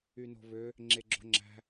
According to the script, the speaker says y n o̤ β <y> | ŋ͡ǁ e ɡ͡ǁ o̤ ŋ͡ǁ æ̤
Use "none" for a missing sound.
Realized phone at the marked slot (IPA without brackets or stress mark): ø